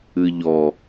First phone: ɨ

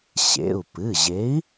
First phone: ɕ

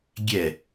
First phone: ɡʲ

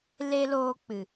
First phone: l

